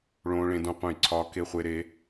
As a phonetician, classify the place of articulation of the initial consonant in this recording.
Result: retroflex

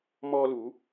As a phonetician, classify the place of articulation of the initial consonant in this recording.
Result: labial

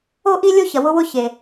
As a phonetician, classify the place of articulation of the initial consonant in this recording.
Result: glottal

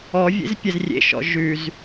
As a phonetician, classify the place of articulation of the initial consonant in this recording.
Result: labial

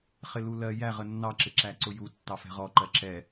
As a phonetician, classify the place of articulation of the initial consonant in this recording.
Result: uvular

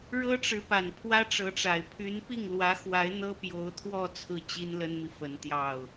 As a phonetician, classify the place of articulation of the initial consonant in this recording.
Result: retroflex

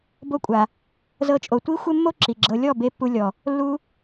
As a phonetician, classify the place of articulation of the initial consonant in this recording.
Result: labial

